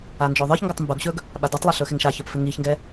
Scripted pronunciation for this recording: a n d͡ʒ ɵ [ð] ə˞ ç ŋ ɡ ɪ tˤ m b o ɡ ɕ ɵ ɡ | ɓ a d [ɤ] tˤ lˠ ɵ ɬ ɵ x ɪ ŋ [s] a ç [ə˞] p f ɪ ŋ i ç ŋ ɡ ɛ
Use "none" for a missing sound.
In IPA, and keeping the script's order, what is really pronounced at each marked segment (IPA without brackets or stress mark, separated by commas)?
ðˤ, o, ʃ, ə˞